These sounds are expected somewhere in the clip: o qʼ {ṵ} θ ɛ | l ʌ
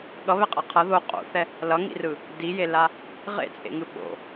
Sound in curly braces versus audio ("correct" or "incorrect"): incorrect